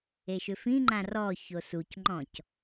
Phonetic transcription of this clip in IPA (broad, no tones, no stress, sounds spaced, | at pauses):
e ʃ ʏ f ĩ ŋ͡ǃ ã r ɔ ç o s u c ŋ͡ǃ ɔ̃ c